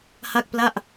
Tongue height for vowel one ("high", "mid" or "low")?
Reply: low